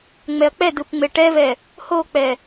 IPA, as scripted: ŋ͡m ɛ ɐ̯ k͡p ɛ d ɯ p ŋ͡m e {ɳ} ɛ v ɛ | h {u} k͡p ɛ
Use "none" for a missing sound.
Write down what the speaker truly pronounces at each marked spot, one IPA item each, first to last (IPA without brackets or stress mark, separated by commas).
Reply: ʈ, o